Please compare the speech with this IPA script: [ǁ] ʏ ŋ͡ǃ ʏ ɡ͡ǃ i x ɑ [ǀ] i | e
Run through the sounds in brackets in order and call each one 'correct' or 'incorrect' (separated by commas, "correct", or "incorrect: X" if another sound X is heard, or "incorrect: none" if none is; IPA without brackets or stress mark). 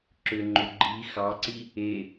correct, correct